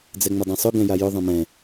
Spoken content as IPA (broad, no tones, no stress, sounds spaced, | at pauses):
d͡z ɛ ŋ͡m ɐ dˤ ẽ sˤ ʊ ɡ ɛ̃ j a j ʊ ðˤ ɐ̃ m ɛ̃